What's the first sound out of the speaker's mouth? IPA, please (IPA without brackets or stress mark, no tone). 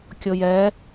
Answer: kʲ